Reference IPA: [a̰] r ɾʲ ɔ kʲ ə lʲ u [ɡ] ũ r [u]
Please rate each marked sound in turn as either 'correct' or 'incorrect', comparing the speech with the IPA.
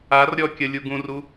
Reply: incorrect, correct, correct

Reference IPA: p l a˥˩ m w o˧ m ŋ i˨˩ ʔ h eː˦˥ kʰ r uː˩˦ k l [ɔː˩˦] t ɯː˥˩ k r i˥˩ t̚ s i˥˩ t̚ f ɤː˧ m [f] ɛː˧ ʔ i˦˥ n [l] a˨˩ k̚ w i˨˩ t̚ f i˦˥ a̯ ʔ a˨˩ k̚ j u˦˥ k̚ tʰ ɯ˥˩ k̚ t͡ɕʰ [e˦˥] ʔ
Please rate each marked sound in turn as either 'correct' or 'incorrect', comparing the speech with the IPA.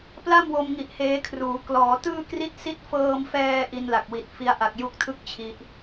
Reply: correct, correct, correct, incorrect

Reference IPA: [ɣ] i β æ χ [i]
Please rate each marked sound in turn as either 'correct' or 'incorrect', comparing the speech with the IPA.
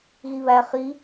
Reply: correct, correct

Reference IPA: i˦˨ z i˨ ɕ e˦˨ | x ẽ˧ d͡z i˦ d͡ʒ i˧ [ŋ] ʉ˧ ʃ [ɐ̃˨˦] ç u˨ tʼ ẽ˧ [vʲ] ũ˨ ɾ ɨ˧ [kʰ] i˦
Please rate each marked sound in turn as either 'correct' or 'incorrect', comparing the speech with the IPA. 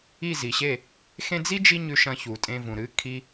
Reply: incorrect, incorrect, incorrect, correct

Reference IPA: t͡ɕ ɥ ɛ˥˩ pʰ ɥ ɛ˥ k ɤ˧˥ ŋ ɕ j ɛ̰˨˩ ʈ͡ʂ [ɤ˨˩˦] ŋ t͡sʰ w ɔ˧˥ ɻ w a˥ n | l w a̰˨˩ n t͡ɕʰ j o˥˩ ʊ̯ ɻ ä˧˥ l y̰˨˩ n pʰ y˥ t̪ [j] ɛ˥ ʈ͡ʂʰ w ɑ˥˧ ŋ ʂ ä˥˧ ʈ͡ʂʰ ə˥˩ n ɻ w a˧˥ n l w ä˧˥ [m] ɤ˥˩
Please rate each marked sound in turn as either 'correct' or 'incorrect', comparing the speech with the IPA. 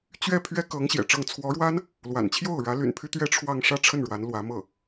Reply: incorrect, incorrect, correct

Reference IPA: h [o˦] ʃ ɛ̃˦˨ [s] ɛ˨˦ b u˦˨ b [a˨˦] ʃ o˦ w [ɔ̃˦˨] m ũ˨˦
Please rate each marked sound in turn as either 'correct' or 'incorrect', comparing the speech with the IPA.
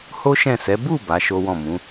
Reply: correct, correct, correct, correct

